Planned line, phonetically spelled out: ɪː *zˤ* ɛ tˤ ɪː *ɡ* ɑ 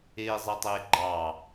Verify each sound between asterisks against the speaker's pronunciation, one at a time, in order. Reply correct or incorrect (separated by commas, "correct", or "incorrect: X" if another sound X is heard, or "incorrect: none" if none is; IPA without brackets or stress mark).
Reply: correct, incorrect: ɡ͡ǃ